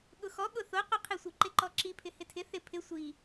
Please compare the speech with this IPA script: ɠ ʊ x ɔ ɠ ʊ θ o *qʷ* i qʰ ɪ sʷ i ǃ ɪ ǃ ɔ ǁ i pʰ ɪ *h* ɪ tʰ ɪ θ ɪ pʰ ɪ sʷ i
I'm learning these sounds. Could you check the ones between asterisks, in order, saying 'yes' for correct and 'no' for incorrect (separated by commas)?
yes, yes